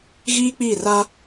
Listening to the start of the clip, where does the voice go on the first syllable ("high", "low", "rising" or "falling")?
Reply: high